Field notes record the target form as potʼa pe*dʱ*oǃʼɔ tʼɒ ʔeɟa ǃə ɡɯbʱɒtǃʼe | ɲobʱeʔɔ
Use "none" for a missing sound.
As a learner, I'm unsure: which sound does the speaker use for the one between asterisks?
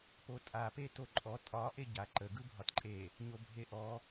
t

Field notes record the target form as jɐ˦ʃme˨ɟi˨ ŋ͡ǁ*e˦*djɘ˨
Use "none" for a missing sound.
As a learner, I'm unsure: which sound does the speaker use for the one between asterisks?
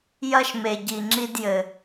i˦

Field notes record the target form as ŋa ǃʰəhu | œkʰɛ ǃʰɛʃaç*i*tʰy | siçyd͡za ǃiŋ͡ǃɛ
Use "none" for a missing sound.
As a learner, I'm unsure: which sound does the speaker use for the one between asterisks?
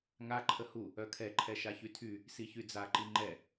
y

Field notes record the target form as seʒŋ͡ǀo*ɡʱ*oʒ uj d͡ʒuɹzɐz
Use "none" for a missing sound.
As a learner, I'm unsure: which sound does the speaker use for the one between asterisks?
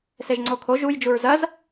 kʰ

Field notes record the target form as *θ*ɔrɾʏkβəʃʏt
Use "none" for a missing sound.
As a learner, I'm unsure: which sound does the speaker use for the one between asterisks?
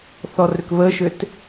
θ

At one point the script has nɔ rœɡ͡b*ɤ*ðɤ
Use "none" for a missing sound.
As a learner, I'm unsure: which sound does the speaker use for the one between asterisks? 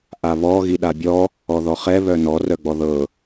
ɔ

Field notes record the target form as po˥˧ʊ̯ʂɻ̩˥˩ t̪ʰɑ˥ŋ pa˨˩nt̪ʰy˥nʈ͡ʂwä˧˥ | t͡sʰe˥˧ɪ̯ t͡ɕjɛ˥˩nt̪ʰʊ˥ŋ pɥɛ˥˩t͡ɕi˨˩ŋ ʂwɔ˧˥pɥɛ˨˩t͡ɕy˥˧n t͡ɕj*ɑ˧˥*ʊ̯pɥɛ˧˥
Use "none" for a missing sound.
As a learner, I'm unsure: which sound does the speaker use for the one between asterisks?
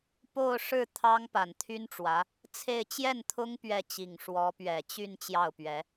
ɑ˥˩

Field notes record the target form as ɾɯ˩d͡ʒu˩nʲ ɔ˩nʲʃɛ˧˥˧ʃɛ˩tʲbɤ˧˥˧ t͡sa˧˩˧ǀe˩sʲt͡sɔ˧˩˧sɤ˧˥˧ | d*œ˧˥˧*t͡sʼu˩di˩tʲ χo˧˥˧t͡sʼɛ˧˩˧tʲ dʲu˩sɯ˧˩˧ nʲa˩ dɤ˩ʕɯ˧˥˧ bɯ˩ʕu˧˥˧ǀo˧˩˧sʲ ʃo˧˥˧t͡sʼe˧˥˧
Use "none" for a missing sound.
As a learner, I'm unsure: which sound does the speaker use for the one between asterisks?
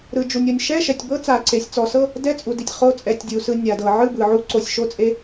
ɛ˧˥˧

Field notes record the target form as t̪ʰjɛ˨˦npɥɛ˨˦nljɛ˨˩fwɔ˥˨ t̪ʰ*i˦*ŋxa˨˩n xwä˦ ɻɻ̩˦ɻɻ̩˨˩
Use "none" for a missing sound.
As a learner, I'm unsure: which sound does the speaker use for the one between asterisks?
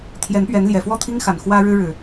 i˦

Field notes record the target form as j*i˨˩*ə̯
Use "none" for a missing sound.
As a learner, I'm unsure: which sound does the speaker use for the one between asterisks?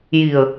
i˨˩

